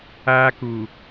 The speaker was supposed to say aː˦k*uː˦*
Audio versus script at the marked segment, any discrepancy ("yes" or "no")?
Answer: yes